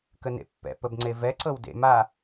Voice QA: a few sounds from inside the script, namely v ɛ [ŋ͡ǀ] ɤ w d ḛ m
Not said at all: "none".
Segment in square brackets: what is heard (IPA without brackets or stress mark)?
ǀ